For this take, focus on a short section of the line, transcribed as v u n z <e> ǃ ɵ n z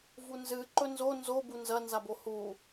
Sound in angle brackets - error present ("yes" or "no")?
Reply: yes